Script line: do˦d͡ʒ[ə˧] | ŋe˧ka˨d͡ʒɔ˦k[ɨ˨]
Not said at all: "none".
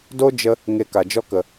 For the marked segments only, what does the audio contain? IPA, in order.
ə˧, ə˨

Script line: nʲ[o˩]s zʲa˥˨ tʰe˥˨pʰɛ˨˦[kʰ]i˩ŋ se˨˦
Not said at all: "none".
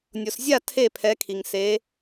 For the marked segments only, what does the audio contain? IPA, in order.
o˩, kʰ

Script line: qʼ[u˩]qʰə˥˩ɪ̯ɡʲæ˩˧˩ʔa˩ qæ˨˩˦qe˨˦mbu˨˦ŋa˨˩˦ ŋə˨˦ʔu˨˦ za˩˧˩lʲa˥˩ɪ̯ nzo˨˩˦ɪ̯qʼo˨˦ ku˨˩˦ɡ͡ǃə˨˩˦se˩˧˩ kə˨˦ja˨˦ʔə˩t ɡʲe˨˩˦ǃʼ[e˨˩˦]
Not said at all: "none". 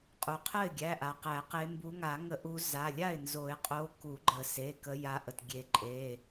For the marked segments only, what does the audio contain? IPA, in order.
u˩, e˩˧˩

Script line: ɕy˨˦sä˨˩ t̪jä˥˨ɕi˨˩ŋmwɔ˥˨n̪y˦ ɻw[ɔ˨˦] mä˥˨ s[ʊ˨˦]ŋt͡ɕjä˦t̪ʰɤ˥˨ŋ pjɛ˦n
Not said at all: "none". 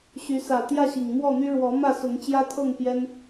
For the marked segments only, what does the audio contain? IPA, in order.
ɔ˨˦, ʊ˨˦

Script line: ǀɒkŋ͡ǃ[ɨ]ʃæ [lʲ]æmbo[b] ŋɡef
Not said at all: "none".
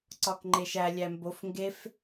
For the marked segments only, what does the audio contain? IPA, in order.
e, lʲ, f

